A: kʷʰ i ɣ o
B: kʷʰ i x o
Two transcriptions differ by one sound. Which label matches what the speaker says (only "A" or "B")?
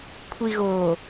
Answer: A